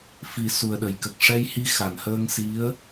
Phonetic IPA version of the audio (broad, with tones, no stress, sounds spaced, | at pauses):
f i˨˩ s u˨˩ ə̯ ɗ ə˨˩˨ j k ə˨˩ k̚ ʂ ɛ˧ j h i˧ x a˨˩˨ n h əː˧ ŋ s i˧˥ ə̯